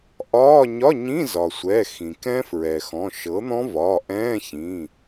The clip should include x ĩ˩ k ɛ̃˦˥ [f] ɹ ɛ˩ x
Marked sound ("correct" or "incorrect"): correct